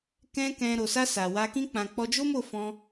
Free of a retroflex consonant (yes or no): yes